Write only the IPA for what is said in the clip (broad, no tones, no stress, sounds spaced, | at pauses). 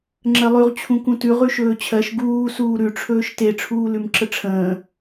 ŋ͡ǁ ɜ lˠ ʉ ʁ t͡ɕʰ ũ k ũ t ʉ ʁ ʉ ʃ ɵː t͡ɕʰ ɜ ʃ ɡ uː s uː ɾ ʉ ʈ͡ʂʰ ɵː ʃ t e ʈ͡ʂʰ uː l ʉ m ǁ ə ʈ͡ʂʰ ə̃ː